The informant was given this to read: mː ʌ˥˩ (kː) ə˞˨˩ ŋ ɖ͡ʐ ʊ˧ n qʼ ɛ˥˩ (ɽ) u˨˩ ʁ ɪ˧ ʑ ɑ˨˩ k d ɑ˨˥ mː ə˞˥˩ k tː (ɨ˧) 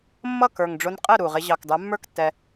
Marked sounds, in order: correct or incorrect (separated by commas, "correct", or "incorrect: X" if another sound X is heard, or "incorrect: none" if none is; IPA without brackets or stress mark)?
incorrect: k, incorrect: ɾ, incorrect: ɛ˧